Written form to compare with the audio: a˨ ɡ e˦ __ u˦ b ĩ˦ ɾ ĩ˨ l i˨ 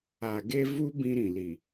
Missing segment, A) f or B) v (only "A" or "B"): B